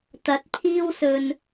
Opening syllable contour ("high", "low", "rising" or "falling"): rising